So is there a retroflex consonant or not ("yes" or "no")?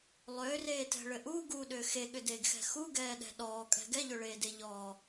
yes